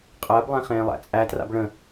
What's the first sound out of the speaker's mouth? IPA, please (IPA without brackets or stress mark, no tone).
qʼ